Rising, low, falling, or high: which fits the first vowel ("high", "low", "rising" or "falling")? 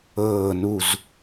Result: falling